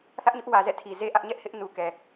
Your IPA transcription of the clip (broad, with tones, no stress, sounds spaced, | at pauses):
θ ä˦ ʔ ɲ ʊ˦ ʔ w ä˨ z ɛ̰˦˨ tʰ i˨ z e˦ ʔ ä˦ ʔ ɲ ɛ˦ ʔ h ɪ˦ ʔ n u˨ k ɛ˨